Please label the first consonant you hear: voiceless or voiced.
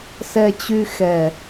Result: voiceless